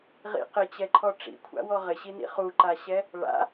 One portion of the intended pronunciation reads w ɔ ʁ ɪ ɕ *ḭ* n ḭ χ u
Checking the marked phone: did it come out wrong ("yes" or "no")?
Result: yes